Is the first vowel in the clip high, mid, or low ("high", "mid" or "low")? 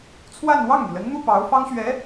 low